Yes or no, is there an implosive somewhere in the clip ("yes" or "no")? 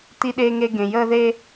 yes